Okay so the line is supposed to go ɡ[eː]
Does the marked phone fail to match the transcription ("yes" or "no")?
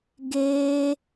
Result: no